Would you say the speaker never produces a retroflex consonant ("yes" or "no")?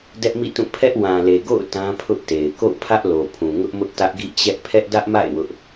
yes